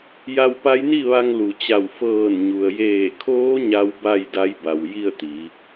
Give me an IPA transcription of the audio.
ja˧wpa˧˥jni˥˨ ʋa˧ŋlu˩t͡ɕa˧˩w fɤː˧˩nɲu˩ə̯jeː˧˩kʰoː˧˥ ɲa˧˥wba˥˨j da˧˥jba˩wji˥˨ə̯t̪i˩˧

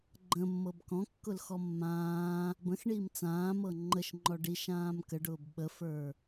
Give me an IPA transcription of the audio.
ɡ͡ǃə̃mːɤb kɔ̃kːʊlxɔ mːãː | bə̃xɳiːm t͡sãːmɤ ŋ͡ǃəʃŋ͡ǃɔ ɖiʃãːm kəɖʊːb ɓəfə˞

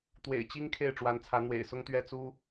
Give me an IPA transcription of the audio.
t̪wḛ˨˩ɪ̯t͡ɕi˦ŋ kʰe˥˨ɪ̯ʈ͡ʂwa˨˦nt͡sʰä˨˦ n̪wḛ˨˩ɪ̯sʊ˦ŋt̪ɥɛ˥˨ t͡su˦

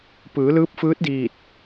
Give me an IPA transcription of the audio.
pɯː˩˧lɯː˧˥p̚fɯː˧˥t̚diː˧˩t̚

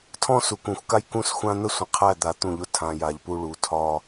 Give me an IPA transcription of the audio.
tʰɔ̃˦su˨kũ˨xʷka˦j kũ˦sxʷã˦ n̪ə˦sʷə̃˨qʰæ˦˨ d̪a˨ t̪ũ˦˨ʎʊ˦tʰã˨ja˨ʎ pu˦ɭu˨ tʰɒ˦

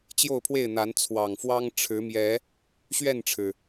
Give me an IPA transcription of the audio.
t͡ɕjo˥˨ʊ̯pʰwe˥˨ɪ̯n̪a˨˦n t͡sʰwɑ˨˩ŋfwɑ˦ŋ ʈ͡ʂʰɻ̩˨˦mjɛ˨˦ | ɕɥɛ˥˨nʈ͡ʂʰɻ̩˩

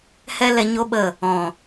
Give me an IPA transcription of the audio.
hɛ˦lɛ˧ɲo˦ɓə˦˨ | ɔ̃˨

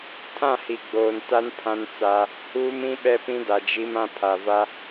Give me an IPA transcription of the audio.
tʰã˦˨hi˨ ɡ͡boː˨nta˦n pʰã˦nt͡sa˦ | huː˦m ĩ˦ɓɛ˦pĩ˦ da˨d͡ʒi˦m ã˦pʰa˨va˦

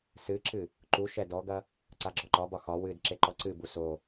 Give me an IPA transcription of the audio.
sɨǁɨ | ǃuʃɛ dɔɡɐ | ǀaɡ͡ǁɔǃɒbɒ xɒ wɨd ǁeǃɔǀɨbu so

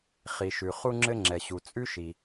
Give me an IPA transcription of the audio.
χi˩ʃʉ˩ χu˧ŋ͡ǁɘ˧ŋ͡ǁɛ˩ɕu˩ t͡sʼʉ˥ʃi˩

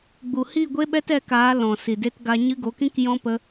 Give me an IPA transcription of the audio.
ɡ͡bu˨hi˦˨ ɡʷe˦ɓɛ˦t ɛ˧kaː˨˦ lɔ̃˨ si˨de˧tɡa˧ɲɨ˦ ɡo˨˦kĩ˦kjɔ̃˦ pə˦

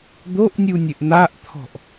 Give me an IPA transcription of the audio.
d̪oʔnʲunʲɘʔ n̪aʔt̪ʰɔ̤ʔ

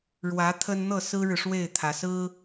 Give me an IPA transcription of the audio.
ɻwä˧˥ t̪ʰə˥n n̪ɤ˥˩sɹ̩˥ɻɻ̩˨ʂwe˥˩ɪ̯ t̪ʰä˧˥sɹ̩˥

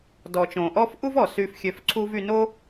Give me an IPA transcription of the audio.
dɔ˩ t͡ʃõ˩ʔɔ˥f ʔu˥vɔ˩ sy˧fxʲø˧fǀʰu˥v y˧no˥

